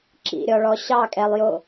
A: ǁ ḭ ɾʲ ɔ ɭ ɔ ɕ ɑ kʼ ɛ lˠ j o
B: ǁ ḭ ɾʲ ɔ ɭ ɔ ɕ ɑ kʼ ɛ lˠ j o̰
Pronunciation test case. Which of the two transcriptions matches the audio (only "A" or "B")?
A